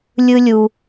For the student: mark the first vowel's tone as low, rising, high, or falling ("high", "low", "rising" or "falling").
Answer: high